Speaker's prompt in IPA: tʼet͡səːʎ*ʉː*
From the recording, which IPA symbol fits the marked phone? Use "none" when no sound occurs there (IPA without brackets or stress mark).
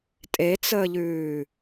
ʉː